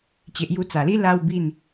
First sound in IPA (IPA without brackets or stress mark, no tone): t͡ɕ